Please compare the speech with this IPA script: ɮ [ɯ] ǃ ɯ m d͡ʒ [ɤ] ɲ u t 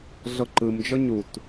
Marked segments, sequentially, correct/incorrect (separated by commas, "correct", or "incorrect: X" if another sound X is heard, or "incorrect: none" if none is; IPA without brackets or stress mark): incorrect: ɤ, correct